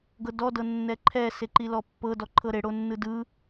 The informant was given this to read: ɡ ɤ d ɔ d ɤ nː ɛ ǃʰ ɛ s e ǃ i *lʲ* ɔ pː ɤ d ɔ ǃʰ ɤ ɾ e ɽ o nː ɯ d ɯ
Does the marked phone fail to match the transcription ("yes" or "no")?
yes